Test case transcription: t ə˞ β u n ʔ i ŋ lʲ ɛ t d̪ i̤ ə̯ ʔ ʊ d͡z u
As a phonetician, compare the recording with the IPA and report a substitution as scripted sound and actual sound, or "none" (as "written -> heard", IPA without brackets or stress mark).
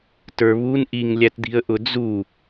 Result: ɛ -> æ